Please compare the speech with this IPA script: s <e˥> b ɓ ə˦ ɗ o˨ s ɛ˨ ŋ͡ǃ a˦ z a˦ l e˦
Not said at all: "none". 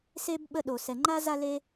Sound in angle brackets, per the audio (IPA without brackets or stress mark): e˥